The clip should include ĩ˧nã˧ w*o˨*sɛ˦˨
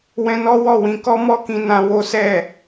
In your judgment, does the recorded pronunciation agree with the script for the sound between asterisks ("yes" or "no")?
no